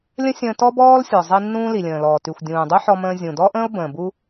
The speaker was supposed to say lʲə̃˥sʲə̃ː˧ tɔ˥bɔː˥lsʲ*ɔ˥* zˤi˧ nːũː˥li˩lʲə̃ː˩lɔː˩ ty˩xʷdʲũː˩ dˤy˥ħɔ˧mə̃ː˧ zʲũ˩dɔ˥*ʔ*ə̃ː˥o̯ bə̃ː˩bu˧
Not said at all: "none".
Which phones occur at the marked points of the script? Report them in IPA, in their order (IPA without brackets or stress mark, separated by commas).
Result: ɔ˩, ʔ